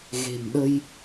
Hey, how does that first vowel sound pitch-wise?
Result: low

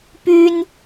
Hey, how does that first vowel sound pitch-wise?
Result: high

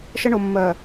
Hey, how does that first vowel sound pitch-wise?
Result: high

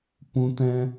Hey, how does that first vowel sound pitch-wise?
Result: high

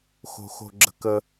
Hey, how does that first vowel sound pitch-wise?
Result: low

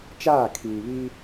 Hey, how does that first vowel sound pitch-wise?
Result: falling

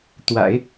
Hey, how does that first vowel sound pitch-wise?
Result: low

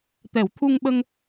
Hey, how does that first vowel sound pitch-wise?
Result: low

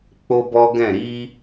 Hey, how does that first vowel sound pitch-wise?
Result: high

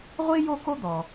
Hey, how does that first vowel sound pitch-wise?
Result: high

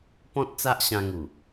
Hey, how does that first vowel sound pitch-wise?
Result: high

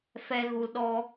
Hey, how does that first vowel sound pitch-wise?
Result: high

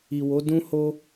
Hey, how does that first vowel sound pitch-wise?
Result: low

